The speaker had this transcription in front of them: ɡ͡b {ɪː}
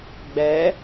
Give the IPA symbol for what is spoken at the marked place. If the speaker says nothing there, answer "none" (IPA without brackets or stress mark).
ɛː